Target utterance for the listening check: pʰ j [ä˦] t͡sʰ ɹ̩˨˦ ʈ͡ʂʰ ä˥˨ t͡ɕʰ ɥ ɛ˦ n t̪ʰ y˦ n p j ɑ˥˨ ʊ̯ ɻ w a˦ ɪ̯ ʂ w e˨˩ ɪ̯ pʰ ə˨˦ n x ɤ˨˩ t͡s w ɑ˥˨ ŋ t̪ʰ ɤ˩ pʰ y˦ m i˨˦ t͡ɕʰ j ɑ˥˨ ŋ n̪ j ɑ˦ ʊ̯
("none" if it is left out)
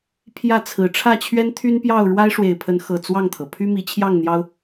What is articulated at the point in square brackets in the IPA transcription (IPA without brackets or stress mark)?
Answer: ä˥˨